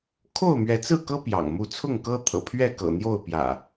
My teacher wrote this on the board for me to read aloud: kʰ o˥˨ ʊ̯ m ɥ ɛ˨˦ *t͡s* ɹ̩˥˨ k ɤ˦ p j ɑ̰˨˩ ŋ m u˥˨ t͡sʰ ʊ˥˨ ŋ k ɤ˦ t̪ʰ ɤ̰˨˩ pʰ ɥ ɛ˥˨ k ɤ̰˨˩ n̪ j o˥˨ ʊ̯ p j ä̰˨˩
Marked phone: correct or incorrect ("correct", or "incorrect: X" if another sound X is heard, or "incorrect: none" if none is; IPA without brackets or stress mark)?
correct